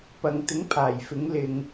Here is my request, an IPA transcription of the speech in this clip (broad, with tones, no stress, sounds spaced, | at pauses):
p ɐ˨ ŋ t̪ ɪ˨˥ ŋ pʰ aː˨˩ j f ɪ˨˥ ŋ l ɪ˨ ŋ